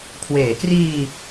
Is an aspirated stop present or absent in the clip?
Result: present